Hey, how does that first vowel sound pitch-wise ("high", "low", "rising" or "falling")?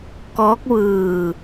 rising